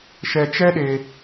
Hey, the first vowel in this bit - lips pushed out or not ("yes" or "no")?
no